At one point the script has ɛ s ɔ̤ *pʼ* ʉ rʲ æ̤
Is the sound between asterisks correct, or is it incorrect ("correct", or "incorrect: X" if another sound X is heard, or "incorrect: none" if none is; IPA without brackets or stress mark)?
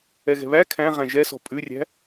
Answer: correct